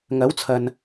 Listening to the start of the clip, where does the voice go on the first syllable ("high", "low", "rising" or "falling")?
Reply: rising